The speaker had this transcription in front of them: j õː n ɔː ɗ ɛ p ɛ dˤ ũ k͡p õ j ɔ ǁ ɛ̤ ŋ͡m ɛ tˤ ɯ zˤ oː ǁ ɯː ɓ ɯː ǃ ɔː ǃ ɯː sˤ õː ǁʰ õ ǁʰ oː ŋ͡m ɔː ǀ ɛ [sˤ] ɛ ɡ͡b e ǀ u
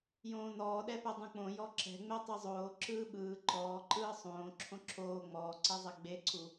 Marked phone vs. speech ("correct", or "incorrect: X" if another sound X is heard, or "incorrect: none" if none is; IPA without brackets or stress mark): incorrect: zˤ